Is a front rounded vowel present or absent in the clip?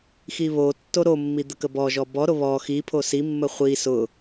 absent